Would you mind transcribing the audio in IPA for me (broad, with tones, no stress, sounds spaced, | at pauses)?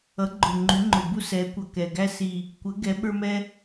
ʌ˨˥ ɡ͡ǃ ʊ˨˩ ŋ͡ǃ u˨˥ ŋ͡ǃ ʊ˨˩ b u˥ s ɛ˨˥ kʷ ʌ˨˩ k ɛ˨˩ ɡ æ˥ s i˨˩ | kʷ ə˨˥ ɡ ɛ˨˥ ɓ ə˞˥ m ɛ˥